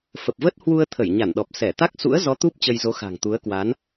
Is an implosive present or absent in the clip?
present